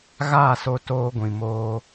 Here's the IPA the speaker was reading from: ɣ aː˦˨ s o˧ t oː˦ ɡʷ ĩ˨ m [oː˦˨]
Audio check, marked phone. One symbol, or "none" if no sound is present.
oː˧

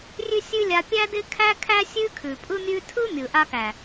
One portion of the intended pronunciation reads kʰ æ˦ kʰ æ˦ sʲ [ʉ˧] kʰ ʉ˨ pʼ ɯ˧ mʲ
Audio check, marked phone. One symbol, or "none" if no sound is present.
ʉ˦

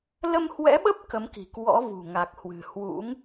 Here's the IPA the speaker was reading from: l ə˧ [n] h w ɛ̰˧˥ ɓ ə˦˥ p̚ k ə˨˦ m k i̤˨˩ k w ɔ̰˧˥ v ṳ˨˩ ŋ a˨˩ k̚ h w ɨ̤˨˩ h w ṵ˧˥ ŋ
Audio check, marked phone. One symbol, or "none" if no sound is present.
m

